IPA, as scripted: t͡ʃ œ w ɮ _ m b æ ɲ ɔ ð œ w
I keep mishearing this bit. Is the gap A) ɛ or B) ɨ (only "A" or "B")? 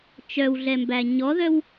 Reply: A